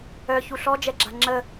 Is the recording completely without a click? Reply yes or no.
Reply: no